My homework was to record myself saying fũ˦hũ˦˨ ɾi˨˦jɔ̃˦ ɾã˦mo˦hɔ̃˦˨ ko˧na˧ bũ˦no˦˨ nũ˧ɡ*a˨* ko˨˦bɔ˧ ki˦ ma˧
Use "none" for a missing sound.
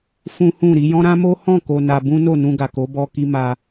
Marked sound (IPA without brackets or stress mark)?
a˨